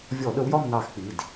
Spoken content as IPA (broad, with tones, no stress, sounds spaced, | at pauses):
vʲ ɔ˧˩˧ ɗ ə˨˦ w j ɒ˦˨ m n ɑ˧˩˧ x k͡p i˩˧˩ d